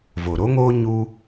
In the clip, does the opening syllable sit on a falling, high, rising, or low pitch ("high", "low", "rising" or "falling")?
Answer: low